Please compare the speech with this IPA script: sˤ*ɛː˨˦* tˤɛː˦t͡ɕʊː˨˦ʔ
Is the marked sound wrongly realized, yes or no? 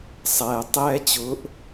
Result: yes